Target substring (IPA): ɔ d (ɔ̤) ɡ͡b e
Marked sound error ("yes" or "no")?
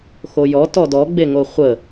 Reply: yes